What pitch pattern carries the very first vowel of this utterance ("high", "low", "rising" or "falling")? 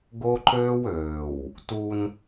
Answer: high